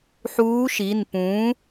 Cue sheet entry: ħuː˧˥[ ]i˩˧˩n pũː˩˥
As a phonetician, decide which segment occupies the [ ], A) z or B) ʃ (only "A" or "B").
B